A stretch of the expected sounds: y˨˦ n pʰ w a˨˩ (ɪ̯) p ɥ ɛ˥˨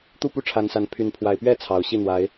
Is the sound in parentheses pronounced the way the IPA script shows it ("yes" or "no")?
yes